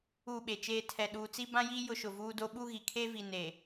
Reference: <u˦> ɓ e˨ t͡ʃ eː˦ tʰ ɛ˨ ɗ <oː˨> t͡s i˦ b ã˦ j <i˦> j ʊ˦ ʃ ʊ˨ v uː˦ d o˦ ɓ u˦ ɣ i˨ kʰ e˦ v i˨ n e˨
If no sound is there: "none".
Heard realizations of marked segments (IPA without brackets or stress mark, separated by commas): u˦˨, uː˨, i˦